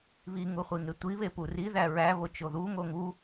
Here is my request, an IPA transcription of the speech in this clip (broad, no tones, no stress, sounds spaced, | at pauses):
β i ŋ u χʷ i ŋ e tʷ i β e p u r i ð æ ɹ æ β o t͡ʃ o ð u ŋ o ŋ u